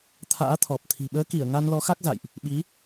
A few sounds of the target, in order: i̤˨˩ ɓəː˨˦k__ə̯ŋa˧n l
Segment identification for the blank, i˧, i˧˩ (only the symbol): i˧˩